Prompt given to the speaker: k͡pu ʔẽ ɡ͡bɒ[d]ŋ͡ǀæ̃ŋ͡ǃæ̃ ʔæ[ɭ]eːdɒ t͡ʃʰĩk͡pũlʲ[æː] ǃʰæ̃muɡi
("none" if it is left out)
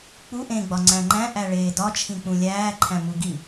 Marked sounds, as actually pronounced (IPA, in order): none, ɭ, æː

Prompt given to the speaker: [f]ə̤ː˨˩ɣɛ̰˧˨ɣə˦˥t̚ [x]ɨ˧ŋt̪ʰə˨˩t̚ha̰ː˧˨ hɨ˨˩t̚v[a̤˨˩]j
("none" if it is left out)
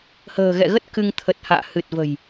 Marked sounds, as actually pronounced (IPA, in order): h, k, ə̤˨˩

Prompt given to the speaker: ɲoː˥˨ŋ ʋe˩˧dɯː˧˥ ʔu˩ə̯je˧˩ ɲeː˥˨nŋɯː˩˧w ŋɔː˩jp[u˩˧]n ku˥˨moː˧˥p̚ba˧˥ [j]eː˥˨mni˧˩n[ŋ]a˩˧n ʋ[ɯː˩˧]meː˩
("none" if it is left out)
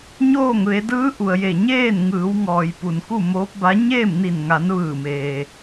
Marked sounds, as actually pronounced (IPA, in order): u˩, ɲ, ŋ, ɯː˧˩

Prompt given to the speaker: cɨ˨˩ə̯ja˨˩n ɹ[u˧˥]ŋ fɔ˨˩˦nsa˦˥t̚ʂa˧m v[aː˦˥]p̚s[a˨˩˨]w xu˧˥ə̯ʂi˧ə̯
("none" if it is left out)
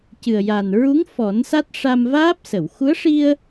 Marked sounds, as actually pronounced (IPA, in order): u˧˥, aː˦˥, ə˨˩˨

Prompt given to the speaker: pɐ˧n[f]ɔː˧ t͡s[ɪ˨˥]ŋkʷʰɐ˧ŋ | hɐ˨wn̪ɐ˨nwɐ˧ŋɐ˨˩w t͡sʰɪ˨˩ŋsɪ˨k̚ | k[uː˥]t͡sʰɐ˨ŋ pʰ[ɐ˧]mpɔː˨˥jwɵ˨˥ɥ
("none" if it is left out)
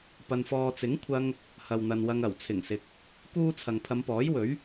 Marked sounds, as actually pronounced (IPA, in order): f, ɪ˨˥, uː˥, ɐ˨˧

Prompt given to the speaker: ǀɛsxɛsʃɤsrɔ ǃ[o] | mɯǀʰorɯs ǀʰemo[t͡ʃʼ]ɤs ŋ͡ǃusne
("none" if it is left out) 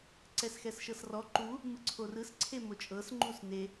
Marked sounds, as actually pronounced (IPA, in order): u, t͡ʃʼ

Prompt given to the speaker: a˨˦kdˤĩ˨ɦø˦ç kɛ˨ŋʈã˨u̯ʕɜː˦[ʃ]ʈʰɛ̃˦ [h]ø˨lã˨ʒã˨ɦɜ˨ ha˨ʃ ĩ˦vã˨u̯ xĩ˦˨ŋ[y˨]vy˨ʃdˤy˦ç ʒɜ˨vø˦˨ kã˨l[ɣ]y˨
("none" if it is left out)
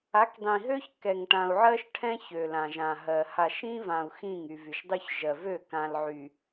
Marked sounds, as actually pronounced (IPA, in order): ʃ, ç, y˨, ʕ

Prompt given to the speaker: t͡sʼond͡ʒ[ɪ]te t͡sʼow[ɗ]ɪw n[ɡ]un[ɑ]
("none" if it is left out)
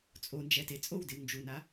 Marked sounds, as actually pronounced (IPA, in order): ɛ, d, d͡ʒ, a

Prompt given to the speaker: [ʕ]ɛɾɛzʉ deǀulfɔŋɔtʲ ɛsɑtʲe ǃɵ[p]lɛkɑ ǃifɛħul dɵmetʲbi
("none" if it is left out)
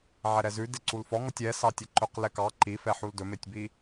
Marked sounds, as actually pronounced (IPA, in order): ʕ, q

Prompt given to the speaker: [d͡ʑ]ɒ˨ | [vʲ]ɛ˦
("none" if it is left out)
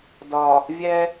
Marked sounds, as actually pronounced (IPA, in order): d, vʲ

